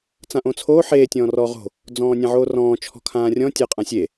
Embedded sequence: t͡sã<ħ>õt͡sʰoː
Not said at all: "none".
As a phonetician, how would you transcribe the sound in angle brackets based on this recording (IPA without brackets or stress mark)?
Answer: ʔ